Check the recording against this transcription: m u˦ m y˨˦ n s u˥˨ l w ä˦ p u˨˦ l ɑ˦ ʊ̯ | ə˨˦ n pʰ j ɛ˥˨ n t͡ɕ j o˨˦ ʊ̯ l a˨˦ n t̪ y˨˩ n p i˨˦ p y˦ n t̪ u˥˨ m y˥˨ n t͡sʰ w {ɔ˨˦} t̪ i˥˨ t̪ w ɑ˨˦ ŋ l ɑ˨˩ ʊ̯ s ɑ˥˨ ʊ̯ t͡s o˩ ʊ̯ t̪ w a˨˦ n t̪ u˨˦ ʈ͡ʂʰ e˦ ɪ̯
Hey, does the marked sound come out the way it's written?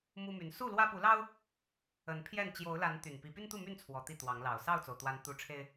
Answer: yes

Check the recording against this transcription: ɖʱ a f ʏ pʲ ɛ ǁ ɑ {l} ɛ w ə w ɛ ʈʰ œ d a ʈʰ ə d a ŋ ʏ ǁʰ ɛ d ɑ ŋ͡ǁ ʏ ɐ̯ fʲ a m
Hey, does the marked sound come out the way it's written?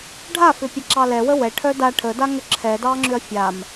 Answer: yes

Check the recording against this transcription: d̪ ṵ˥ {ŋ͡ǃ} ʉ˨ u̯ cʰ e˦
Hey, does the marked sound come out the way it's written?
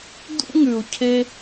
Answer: no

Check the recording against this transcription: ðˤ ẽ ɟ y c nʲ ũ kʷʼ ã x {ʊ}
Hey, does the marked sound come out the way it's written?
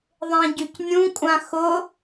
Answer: yes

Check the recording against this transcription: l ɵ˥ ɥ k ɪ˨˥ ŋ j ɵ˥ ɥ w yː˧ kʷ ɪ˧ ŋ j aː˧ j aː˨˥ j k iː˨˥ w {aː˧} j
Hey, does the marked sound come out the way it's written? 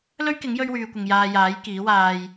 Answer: yes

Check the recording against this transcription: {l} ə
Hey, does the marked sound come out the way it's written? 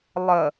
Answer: no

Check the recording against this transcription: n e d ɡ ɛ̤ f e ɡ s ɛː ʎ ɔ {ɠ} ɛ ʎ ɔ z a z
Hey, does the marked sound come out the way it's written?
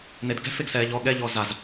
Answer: yes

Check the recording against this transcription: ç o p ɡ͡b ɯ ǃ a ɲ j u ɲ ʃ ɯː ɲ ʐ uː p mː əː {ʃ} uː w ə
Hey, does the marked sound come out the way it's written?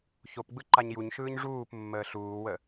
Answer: no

